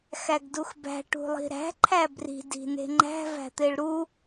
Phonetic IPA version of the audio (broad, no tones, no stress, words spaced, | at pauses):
xæɡduxbæ̤ ʈṳlˠi̤ɾæ̤ ǃʰæbri̤ di̤ne̤ŋ͡ǃæ̤ væ̤t̪eɭɾu